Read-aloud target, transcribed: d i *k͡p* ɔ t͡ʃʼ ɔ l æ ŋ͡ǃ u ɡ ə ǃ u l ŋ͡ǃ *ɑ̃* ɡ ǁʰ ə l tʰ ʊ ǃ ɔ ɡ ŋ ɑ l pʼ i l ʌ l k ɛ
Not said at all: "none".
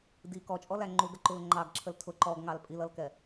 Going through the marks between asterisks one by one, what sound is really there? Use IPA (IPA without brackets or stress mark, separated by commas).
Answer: k, ɑ